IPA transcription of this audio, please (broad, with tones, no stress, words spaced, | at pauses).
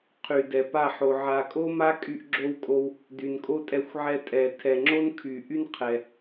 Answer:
qʰy˨dɛ˨pa˦˨ħo˨ ʕa˨kʼo˦ ma˦kʼy˧ʔɡ͡ǁo˧wkʼo˧w | dy˨nkʼo˦tʼɛ˧xʷʕɛ˧ tʼɛ˨ tʰɛ˨ŋ͡ǁo˦nkʰy˨ʔy˦n qʰɛ˨